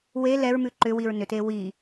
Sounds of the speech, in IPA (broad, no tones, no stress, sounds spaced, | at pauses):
w e l ɛ ɹ m ʉ ǃ ʏ w i ɹ n ʏ t e w i